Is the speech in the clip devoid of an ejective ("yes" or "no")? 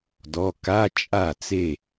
no